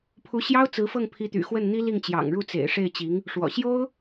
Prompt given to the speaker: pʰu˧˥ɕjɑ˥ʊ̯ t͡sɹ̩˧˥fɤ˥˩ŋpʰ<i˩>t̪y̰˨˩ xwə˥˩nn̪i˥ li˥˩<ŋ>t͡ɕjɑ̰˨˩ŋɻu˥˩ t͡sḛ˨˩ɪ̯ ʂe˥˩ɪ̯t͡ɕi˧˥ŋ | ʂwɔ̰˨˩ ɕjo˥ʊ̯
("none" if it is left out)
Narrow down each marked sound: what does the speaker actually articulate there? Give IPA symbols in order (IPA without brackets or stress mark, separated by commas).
i˧˥, ŋ